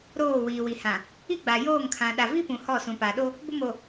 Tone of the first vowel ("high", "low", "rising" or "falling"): falling